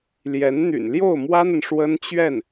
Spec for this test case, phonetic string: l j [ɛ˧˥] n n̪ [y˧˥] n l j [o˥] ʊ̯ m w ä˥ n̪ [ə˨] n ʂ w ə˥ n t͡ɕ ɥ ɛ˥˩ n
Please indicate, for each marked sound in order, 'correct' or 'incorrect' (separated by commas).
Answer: correct, incorrect, incorrect, correct